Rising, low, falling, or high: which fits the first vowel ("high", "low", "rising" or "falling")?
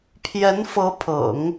rising